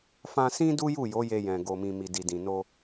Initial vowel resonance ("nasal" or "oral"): nasal